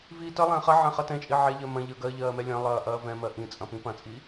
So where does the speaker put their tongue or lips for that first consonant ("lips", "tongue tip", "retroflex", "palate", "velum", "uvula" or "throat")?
lips